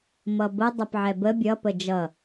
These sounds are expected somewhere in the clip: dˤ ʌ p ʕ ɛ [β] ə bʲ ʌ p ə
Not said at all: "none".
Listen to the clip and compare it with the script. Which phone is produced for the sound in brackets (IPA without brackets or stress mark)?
b